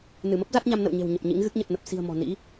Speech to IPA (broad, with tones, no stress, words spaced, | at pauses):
nɨ˧˩mə˦˥p̚ za˦˥t̚ɲa˧mnə̰˧˨w ɲe̤˨˩wɲə˨˩p̚ ɲḭ˧˥ŋɣɨ˦˥k̚ ɲə˨˩t̚nə˨˩p̚si̤˨˩ə̯ mɔ̤˨˩ nḭ˧˥